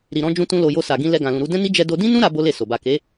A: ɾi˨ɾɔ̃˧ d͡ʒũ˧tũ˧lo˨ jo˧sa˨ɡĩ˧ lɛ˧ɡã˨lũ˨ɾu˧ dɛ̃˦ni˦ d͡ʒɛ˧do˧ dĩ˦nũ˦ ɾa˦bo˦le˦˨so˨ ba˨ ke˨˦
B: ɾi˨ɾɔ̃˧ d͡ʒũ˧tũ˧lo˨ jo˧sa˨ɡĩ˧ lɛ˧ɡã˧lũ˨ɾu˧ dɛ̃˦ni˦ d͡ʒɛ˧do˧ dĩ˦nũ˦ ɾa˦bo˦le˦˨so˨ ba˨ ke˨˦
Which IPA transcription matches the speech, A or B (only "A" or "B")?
A